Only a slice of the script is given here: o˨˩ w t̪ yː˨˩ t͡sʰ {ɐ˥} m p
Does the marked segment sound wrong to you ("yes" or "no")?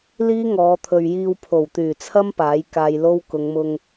no